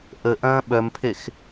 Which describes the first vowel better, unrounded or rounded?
unrounded